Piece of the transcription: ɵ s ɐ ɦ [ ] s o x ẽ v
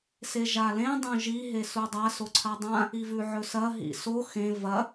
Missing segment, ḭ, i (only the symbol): ḭ